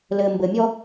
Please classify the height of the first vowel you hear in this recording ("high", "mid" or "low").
mid